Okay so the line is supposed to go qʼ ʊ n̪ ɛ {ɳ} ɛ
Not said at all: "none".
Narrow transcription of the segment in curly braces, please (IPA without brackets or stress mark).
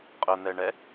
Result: ɳ